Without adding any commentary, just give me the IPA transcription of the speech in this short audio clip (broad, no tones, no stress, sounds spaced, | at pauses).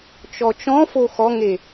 t͡ʃ ɔ t͡ʃ ɔ̃ f o x ɔ ŋ e